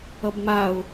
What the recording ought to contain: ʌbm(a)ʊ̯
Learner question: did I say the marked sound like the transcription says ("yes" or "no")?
yes